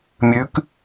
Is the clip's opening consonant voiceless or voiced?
voiced